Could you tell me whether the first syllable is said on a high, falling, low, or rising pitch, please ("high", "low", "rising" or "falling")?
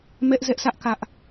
high